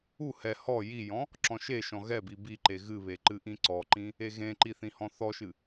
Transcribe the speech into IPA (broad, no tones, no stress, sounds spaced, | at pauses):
u h ɛ h ɔ j i j ɔ̃ | ǁ ɔ̃ ʃ e ʃ ɔ̃ ɣ ɛ b i b i ǃ e ɣ ɨ β e ǃ ɨ ʔ ĩ ǀ ɔ ǃ ĩ | e ɣ ẽ ǃ i θ ĩ h ɔ̃ θ ɔ ʃ ɨ